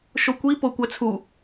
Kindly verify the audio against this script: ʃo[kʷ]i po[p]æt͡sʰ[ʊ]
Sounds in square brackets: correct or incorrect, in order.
correct, incorrect, incorrect

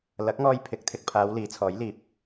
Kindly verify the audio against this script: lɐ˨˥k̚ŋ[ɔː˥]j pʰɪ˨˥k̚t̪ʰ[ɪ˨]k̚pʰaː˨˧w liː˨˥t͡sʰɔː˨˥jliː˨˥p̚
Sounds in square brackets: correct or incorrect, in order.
incorrect, correct

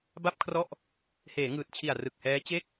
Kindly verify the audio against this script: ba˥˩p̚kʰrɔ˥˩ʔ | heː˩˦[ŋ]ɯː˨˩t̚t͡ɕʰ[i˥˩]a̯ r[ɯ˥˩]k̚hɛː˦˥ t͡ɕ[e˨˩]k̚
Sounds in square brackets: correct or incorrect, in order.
correct, incorrect, incorrect, incorrect

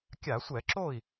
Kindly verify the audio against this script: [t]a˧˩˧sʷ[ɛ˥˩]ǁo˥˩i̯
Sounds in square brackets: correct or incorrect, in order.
incorrect, incorrect

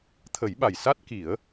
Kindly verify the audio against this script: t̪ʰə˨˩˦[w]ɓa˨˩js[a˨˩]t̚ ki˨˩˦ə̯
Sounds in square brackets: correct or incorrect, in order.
incorrect, incorrect

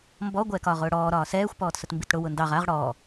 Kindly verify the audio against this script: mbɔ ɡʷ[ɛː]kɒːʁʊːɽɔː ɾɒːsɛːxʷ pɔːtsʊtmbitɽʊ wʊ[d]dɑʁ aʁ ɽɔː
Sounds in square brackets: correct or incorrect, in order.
correct, incorrect

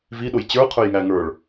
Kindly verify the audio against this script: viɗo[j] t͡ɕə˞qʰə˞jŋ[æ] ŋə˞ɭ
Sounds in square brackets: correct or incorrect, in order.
correct, correct

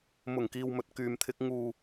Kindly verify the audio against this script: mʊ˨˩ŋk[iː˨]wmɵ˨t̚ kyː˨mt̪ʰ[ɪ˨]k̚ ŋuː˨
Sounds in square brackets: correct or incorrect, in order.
correct, incorrect

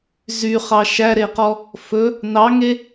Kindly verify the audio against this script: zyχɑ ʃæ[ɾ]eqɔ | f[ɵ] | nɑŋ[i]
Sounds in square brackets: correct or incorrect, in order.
correct, correct, incorrect

